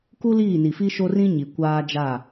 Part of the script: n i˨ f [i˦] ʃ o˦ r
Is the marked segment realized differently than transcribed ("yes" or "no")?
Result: no